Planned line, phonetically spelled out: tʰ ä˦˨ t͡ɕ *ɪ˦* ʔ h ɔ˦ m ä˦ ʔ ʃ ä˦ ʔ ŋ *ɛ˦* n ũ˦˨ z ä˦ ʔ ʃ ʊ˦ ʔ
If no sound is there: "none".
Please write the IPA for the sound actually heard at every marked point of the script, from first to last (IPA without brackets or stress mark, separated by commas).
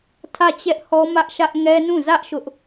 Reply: ɛ˦, ɛ˦